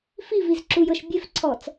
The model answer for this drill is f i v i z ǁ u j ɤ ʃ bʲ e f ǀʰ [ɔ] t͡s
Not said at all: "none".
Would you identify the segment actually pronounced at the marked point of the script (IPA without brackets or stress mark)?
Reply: ɔ